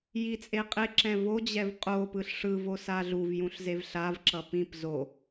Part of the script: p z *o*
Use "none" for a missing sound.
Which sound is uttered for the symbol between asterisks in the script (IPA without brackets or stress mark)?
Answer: o